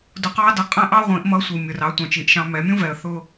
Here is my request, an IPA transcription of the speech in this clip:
d ʊ˧ q ɑ˥ d ʌ˧ qʼ æ̃˥ ʔ ɑ˥ ʁʷ ĩ˩˧ ʔ m ʌ˧˥ sʷ i˩ mʲ ʊ˩ r ɑ˩˧ tʷ ɑ̃˩ t͡ʃ i˩ ʔ ʃ ɑ̃˧ m ɛ˩˧ mʲ ũ˥ v ɛ˩ ə̯ θ ʊ˧

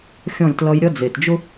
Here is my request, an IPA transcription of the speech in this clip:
xʲ ɔ̃˦˨ lʲ t l ʌ˦ j ɾʲ ʌ˦ d͡z e˨ t d͡ʒ ʊ˦

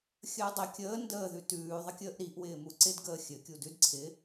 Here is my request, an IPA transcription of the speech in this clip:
xʲ əː dˤ ɪ kʲ əː n d əː ð ʉ t ʉː ðˤ ə kʲ əː ʔ ɾ i ʔ w ɪː m u ǀ ɪ d ɡ əː xʲ ɘ kʲ u d ʉ d ǀʰ ɪ

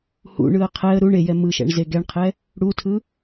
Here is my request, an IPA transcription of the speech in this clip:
h ṵ ɳ ɯ ə̯ qʰ ɛ ə̯ ɾ u ɳ e j ɛ m ɯ ʃ ɛ̰ ɳ z e ɡ ɛ ɳ qʰ ɛ | ɽ u tʰ ɯ

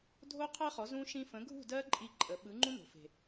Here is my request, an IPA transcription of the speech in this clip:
dʱ o˦˥ qʰ ɜ˦˥ χ ɔ˨˥ z ũ˦˥ ʃ ĩ˦˥ f ə̃˨˥ ɡʱ ṳ˥˨ d ɜ˦˥ ǃʼ i˦˥ ǃʼ ə˨˥ ɓ ɯ˨˥ ŋ͡ǃ ũ˦˥ n o̤˨ f e̤˨

